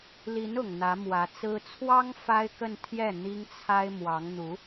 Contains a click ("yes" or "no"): no